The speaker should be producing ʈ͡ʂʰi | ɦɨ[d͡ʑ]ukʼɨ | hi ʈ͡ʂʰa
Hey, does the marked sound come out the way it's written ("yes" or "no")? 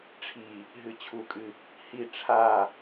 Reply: no